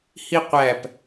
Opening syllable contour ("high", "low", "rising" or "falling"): high